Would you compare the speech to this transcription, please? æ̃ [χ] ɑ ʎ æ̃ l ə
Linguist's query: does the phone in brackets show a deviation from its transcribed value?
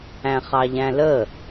no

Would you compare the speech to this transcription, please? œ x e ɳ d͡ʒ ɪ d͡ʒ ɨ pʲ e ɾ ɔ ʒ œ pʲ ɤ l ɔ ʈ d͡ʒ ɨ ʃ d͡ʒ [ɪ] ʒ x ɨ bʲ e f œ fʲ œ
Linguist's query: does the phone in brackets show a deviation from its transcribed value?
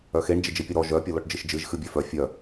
yes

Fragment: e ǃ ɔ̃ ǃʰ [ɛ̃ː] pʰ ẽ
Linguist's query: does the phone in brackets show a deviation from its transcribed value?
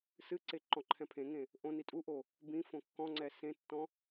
yes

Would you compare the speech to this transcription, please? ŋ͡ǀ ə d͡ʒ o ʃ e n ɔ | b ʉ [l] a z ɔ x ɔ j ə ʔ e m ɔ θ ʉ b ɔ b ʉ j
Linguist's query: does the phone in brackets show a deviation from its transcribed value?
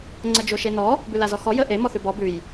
no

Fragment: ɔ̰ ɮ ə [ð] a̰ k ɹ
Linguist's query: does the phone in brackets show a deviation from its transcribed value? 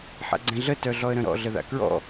no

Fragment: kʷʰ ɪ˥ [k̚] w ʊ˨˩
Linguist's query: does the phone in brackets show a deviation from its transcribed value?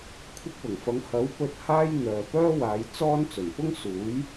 no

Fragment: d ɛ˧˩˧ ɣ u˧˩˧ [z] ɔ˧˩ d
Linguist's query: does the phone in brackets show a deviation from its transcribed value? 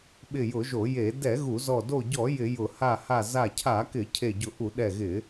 no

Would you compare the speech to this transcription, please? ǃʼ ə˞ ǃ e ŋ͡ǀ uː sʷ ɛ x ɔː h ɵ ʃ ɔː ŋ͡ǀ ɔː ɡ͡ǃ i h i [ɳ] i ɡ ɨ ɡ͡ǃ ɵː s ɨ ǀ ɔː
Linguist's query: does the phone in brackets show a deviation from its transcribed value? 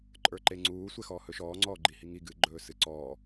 yes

